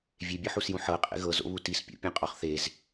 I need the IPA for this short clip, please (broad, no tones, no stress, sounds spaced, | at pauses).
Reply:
vʲ e bʲ ɤ ħ u s j ũ ħ ɤ qʼ ḛ ɣ ɤ z o̰ β u t i s pʲ o̰ pʲ ẽ qʼ ɔ χ θ e z